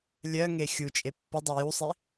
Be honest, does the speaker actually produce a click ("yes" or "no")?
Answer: no